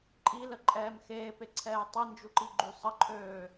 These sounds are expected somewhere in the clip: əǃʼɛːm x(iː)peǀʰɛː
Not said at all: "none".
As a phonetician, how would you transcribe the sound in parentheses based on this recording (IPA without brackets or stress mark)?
eː